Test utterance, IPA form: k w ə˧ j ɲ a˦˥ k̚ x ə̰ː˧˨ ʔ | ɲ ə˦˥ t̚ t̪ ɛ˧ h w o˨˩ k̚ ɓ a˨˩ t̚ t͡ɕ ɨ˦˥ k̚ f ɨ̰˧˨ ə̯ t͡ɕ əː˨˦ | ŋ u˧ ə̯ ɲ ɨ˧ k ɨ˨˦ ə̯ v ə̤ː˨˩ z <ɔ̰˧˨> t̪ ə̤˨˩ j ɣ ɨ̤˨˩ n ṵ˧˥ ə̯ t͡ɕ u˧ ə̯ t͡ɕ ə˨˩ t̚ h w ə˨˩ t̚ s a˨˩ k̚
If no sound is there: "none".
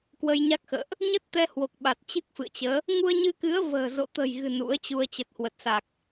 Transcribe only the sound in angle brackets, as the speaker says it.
o̰˧˨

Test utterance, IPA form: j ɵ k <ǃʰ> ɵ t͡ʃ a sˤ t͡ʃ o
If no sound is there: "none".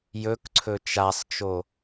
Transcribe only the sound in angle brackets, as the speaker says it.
ǀʰ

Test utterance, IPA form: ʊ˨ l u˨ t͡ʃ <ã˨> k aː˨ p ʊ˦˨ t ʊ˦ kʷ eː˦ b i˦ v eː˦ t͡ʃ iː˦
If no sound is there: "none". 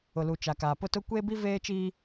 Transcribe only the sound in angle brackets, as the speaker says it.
a˨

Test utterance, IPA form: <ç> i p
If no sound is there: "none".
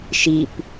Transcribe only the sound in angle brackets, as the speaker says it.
ʃ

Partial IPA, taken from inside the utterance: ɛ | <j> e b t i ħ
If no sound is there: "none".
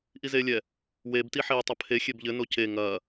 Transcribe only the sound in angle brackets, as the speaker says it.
w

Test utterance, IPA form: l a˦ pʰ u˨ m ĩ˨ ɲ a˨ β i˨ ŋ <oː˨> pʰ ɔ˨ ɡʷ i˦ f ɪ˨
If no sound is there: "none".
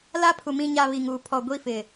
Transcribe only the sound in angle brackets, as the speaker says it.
uː˨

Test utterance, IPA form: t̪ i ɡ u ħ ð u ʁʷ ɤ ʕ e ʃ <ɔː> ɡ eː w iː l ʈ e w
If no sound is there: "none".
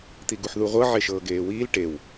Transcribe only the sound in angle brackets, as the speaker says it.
ɤː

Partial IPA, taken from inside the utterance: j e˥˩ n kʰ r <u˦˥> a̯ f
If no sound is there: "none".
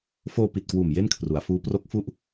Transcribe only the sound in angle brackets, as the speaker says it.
u˩˦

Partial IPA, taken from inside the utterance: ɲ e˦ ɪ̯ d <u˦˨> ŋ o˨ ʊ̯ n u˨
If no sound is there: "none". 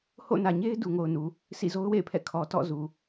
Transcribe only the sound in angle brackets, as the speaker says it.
u˨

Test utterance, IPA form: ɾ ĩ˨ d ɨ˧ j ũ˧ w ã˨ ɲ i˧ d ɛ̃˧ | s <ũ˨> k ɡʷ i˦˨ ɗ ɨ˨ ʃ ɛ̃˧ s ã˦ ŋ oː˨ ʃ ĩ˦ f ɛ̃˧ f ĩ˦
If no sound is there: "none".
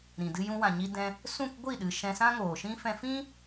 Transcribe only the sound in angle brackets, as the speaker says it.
ũ˦˨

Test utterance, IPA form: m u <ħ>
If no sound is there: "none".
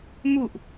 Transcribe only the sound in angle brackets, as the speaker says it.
ʔ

